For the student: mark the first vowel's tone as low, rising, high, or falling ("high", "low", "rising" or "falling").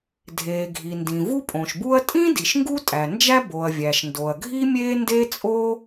low